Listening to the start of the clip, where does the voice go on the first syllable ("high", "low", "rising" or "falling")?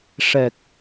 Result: low